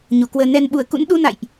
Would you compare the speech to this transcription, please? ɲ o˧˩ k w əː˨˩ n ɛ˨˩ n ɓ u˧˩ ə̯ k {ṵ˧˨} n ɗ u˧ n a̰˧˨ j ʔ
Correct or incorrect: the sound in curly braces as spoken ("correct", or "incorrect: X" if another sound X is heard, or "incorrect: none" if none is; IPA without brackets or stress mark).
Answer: incorrect: ṵ˧˥